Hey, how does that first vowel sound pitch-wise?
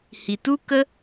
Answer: low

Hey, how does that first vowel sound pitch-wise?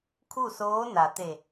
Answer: falling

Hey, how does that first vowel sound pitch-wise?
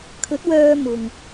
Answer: rising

